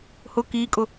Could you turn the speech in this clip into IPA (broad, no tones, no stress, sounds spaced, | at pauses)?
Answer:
h ʊ k i kʼ ʊ